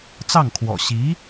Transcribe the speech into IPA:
t͡sɑ˥˩ŋkʰwɔ̰˨˩ ɕi˧˥

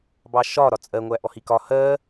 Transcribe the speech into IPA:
bɑʃɒ ɾɒt͡sʼɜ ŋʷæʔɔhikɒ hɜ

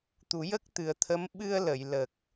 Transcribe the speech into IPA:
t̪u˨˩˦jə˦˥k̚t̪ɨ˨˩ə̯t̪ʰə˧˥m ɓɨ˧ə̯ lə˨˩˨j lə˨˩k̚

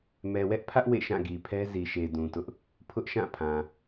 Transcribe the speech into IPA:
mɛ˨wɛ˦ʔpʰä˦ʔ wḛ˦˨ʃã˦˨ɡi˨pʰɛ˦ zi˨ʃe˨ dũ˨tʊ˦ʔ | pʰʊ˦ʔʃã˦˨pʰã˨

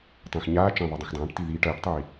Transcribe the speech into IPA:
tˤẽx ɲaː t͡ʃɐ̃ðˤɐ dˤũxdˤãːʈti ðiːʈ ɐːʈtˤiː

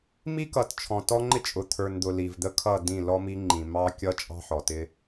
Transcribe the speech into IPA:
mi˦kʌ˨tt͡ʃʰɔ̃˨ tɔ˦ŋ͡ǃɪ˦t͡ʃʼʊ˨ t̪ʰə˞˨nd̪ʊ˨ li˨vd̪ə˦kʰʌ˦˨dĩ˦˨ lɔ˦mi˦ŋ͡ǃĩ˨ mɑ˦kʲʌ˦ t͡ʃʼɑ̤˦ħɔ˨tɪ˦

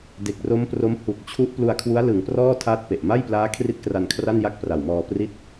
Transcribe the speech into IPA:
de˨˩k̚ro˦˥mpro˦˥m hu˨˩k̚t͡ɕʰu˦˥ʔ plu˧a̯kʰwu˦˥a̯ lɯ˩˦ŋprɔː˥˩ tʰaː˥˩t̚pe˨˩ʔ ma˥˩jplaː˦˥ kʰri˥˩t̚kra˧nkʰra˥˩nja˥˩k̚ pra˨˩wmɔː˧pri˥˩t̚

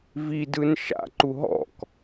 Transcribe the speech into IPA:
vidɯn ʃa̰ǃu ɦɔ̰k

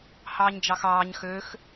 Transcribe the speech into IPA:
hɑːɲd͡ʒɑxɑːɲ xøx

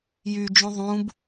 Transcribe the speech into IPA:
jyd͡ʒũ ðˤũb

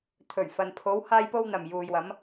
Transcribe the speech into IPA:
t̪ʰɵ˨˩ɥ fɐ˨npʰo˨˧w haː˥jpo˥wn̪ɐ˨m juː˨jwɐ˨˧m

